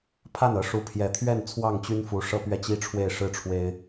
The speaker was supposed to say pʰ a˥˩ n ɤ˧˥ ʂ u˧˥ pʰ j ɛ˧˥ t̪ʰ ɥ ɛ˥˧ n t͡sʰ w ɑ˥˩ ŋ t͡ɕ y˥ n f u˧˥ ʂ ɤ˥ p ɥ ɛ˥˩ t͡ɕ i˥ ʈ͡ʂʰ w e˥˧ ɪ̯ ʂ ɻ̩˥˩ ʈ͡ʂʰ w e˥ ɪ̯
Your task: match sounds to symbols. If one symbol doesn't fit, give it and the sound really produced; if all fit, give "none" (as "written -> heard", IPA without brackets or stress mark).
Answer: none